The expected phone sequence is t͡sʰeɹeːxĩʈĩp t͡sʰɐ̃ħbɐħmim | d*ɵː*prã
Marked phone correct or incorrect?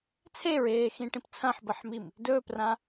correct